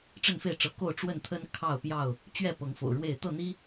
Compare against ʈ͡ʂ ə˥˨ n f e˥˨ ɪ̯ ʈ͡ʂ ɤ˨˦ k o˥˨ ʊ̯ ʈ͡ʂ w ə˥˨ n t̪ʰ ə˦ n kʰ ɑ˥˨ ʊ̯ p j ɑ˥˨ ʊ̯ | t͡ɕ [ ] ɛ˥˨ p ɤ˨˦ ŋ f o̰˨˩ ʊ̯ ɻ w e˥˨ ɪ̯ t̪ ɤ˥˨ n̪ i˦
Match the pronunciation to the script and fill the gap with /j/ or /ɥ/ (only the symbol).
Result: ɥ